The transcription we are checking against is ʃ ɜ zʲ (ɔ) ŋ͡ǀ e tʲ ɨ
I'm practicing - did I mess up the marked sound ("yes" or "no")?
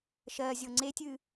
yes